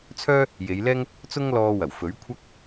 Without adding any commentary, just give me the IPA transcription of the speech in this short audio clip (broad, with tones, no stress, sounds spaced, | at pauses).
t͡sʰ œː˥ | j e˨˧ j l ɛː˥ ŋ | t͡s ʊ˥ ŋ l ɔː˧ w ɐ˨˩ w f ɵ˨˥ ɥ kʷʰ ɐ˥ k̚